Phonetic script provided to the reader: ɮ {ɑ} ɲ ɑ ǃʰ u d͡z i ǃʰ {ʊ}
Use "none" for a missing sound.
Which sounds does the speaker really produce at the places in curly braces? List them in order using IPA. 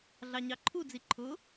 ɑ, ʊ

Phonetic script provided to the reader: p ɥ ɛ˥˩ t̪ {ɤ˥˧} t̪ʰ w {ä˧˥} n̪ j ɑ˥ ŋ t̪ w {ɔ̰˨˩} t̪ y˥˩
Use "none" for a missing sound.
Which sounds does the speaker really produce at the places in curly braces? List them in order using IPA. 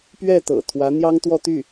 ɤ̰˨˩, ä˧˥, ɔ˥˧

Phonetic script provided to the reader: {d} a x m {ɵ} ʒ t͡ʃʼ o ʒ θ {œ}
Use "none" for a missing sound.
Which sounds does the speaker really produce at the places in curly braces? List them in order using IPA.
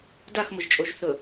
d, ʊ, ɵ

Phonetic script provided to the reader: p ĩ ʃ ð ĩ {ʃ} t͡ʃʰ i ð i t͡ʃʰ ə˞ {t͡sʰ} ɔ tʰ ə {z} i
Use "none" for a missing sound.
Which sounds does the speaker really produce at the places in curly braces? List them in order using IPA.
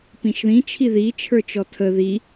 none, t͡ʃ, ð

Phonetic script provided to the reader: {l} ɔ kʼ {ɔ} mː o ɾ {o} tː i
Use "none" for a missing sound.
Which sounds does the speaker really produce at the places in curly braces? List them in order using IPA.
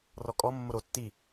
r, ɔ, o

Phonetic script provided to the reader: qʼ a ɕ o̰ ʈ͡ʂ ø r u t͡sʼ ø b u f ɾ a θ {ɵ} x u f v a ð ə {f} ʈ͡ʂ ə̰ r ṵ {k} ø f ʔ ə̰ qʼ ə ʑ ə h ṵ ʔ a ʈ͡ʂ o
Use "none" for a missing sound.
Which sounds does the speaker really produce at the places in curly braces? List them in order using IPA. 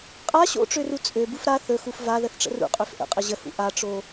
ɵ, θ, qʼ

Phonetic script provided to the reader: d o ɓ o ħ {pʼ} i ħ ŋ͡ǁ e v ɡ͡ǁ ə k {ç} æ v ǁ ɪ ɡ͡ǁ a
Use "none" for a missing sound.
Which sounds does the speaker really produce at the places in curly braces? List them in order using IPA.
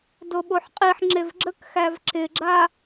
qʼ, x

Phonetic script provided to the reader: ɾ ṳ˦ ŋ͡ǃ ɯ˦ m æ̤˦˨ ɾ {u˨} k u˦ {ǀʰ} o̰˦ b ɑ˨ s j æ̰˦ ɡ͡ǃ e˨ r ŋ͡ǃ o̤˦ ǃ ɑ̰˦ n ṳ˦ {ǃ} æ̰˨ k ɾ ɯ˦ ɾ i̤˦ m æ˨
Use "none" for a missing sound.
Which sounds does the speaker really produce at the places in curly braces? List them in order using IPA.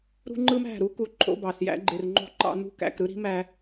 u˦, ǃʰ, k

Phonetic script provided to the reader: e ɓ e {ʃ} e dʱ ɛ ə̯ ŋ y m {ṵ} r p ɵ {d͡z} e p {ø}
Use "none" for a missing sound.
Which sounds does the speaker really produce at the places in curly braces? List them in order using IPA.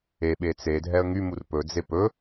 t͡s, u, d͡z, ɵ

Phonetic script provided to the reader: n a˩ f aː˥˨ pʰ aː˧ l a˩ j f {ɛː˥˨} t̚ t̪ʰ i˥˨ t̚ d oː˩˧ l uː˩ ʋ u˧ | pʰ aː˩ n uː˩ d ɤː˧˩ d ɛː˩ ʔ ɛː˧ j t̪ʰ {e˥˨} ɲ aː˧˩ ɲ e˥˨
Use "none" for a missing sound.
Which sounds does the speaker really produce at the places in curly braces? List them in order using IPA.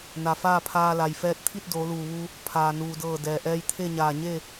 ɛː˧, e˥˨

